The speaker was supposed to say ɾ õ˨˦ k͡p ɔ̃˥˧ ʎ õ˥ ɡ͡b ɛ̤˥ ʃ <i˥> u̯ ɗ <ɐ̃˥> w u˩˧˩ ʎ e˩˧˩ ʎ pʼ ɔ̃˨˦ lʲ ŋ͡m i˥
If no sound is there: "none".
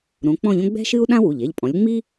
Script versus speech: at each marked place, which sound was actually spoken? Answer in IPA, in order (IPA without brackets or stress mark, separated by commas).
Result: ɨ˥, ã˥